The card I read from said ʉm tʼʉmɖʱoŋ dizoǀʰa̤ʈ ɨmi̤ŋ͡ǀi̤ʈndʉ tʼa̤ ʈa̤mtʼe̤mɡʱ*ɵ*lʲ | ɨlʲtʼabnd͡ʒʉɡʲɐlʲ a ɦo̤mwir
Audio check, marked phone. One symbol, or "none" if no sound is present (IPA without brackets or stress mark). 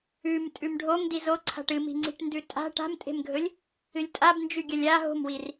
ɵ